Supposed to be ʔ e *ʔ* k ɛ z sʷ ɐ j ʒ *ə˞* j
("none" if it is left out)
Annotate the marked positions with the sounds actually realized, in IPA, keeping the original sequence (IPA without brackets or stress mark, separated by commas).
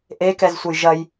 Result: none, ɐ